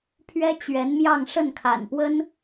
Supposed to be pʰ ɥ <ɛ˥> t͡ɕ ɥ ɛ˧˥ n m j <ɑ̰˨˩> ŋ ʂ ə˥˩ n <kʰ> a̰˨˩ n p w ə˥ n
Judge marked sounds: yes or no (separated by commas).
yes, no, yes